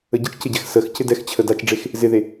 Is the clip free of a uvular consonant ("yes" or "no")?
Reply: yes